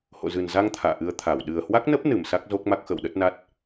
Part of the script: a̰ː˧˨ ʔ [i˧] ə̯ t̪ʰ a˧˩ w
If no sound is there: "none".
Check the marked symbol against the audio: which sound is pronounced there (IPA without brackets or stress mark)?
ɨ˧